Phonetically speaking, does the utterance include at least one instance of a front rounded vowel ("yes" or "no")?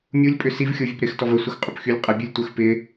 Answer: yes